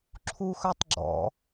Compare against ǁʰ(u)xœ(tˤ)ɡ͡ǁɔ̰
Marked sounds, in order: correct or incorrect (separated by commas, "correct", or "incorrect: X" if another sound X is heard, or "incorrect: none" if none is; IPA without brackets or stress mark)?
correct, correct